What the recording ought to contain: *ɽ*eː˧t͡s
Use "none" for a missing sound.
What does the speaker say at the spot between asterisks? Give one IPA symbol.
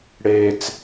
ɽ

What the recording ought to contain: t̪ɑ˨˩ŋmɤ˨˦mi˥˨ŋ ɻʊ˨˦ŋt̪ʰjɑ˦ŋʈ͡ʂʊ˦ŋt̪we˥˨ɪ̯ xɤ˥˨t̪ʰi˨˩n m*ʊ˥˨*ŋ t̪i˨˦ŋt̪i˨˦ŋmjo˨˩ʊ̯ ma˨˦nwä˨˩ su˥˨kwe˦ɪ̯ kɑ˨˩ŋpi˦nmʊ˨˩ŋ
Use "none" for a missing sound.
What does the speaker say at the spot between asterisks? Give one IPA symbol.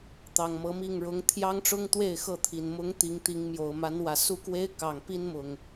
ʊ˨˦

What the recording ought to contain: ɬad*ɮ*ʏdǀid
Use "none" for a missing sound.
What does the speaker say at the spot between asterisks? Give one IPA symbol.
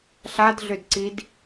ɮ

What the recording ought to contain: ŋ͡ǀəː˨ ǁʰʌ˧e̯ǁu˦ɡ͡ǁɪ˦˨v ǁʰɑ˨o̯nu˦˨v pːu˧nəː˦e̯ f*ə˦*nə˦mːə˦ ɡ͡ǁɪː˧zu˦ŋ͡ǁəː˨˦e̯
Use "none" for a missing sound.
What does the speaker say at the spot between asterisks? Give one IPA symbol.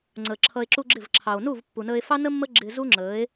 ɑ˦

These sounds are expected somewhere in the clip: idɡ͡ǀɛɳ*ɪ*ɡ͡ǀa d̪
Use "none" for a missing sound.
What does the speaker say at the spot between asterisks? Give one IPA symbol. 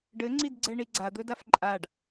i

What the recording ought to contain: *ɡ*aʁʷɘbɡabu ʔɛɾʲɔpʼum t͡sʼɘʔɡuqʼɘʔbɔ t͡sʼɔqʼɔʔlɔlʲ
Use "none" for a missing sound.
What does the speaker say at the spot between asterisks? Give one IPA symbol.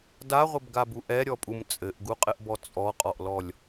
d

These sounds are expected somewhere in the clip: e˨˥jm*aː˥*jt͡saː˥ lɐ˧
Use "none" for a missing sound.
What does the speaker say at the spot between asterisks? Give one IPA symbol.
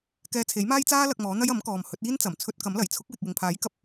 aː˥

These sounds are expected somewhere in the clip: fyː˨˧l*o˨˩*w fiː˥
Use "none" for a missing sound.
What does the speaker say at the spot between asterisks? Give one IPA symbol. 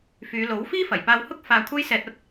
o˨˥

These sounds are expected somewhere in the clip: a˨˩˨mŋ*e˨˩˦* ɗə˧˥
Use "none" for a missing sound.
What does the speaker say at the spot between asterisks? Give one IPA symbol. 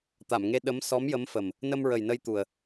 e˧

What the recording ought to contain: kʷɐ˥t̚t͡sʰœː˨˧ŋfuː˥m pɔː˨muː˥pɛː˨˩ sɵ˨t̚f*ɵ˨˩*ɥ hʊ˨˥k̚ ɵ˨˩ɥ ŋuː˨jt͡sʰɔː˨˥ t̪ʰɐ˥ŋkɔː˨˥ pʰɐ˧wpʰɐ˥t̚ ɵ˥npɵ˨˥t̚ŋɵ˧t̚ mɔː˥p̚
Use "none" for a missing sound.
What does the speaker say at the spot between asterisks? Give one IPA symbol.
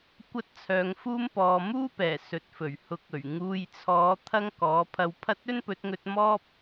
ɵ˨˩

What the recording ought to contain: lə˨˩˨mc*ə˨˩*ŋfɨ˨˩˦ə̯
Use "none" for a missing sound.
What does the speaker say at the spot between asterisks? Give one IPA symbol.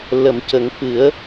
ə˨˩˦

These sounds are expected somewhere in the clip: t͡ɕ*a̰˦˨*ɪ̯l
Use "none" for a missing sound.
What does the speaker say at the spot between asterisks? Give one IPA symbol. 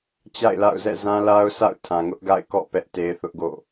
a̰˦˨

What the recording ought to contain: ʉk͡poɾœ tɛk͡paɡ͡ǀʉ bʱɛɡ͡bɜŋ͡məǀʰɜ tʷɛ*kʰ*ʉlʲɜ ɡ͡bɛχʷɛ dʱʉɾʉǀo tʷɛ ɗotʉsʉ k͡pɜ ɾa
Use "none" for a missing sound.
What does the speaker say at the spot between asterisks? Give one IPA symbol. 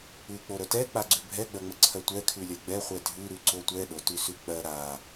kʰ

